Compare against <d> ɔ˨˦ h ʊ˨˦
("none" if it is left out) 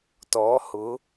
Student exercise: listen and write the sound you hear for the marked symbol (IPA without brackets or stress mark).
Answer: t